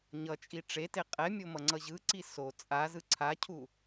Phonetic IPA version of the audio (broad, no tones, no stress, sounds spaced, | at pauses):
ɲ ʌ t͡ʃʼ i ʈ͡ʂ e t e qʼ ɛ mʲ o m ʌ ŋ͡ǀ ʌ ʑ ɯ ǀ i s o t͡sʼ a z ɯ ǀʰ a cʰ u